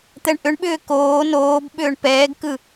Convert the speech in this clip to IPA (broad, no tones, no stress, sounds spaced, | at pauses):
t̪ ɛ ɳ ʔ ʏ ɳ ɓ ʏː k oː n oː b ɓ ʏː ɳ p ɛː ɡ k ɯ